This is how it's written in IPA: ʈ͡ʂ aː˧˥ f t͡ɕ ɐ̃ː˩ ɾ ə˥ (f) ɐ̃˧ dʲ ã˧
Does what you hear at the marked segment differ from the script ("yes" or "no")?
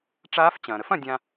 no